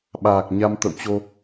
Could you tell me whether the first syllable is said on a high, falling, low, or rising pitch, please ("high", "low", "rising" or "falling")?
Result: low